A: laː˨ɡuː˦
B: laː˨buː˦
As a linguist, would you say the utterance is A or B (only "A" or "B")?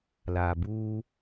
B